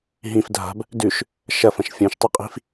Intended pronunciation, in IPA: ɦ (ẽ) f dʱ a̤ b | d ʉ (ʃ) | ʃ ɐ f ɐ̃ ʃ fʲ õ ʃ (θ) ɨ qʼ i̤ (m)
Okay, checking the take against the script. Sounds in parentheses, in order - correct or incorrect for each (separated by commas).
incorrect, correct, incorrect, incorrect